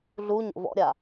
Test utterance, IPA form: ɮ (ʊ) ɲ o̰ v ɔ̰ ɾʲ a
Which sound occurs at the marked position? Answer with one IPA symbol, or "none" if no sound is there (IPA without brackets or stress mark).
u